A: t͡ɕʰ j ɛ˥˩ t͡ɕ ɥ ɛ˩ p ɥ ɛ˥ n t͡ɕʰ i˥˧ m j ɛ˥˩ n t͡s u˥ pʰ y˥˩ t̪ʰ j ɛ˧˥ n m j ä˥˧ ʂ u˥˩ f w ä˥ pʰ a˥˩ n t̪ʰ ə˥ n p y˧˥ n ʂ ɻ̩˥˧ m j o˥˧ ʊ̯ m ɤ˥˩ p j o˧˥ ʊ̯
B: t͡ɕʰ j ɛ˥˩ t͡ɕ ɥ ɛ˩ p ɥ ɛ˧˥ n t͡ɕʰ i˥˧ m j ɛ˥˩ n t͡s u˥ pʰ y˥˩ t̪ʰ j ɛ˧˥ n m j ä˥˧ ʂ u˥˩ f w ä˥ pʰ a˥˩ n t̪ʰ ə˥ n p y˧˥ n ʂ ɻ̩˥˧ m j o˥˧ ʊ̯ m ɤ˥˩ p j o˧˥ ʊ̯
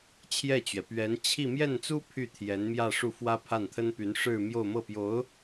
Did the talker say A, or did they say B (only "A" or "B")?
B